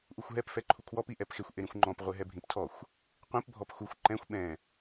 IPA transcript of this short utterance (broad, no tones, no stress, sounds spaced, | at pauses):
ʔ u xʷ ɦ ɛ p f ɛ ǃʰ u kʰ w ɔ p i ʔ ɛ p x e xʷ ʔ e ɾ ĩ xʷ ŋ͡ǃ ɔ̃ p ʁʷ e ɦ ɛ bʱ ĩ p tʰ ɔ xʷ | qʷ ĩ p bʱ ɔ p x u xʷ ǃ ɛ̃ xʷ ɓ ɛ̃